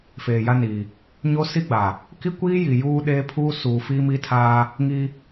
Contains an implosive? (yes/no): yes